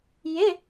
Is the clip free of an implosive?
yes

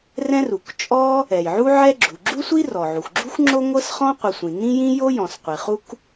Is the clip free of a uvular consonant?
no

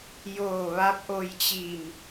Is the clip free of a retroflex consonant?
yes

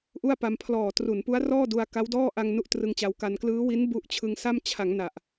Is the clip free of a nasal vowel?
yes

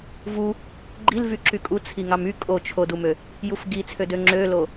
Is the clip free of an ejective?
no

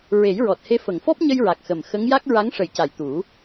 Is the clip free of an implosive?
yes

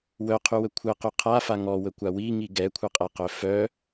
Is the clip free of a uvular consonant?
no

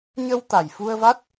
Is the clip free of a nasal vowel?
yes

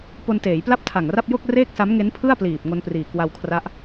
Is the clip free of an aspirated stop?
no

